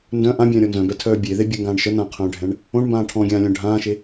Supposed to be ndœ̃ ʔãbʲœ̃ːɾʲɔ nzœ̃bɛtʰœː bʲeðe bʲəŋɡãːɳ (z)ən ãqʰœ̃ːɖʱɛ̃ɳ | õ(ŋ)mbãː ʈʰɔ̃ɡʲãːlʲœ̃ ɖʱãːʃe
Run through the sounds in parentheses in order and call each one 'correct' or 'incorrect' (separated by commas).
incorrect, incorrect